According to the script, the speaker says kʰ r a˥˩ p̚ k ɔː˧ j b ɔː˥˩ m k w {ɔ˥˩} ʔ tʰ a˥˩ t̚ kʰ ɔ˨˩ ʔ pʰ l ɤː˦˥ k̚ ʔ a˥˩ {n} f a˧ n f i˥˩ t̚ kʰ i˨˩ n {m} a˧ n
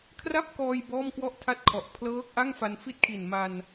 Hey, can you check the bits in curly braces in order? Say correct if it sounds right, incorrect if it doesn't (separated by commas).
correct, incorrect, correct